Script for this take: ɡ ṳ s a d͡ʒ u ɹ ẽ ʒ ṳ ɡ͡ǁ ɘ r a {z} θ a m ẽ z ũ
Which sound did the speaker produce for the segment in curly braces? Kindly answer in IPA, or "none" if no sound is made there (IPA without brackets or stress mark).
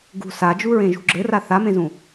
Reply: none